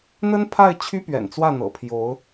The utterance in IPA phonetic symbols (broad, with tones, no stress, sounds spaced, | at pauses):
n̪ ə˥ n pʰ a˥˩ ɪ̯ t͡ɕʰ y˥ p ɥ ɛ̰˨˩ n t͡s w ä˥˩ n̪ ɤ̰˨˩ pʰ j o˧˥ ʊ̯